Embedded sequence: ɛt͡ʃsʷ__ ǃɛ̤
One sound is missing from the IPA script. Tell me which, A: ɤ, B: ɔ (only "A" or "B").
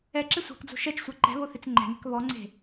A